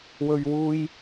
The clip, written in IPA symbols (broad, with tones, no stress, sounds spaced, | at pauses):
w ɵ˨ ɥ w uː˧ j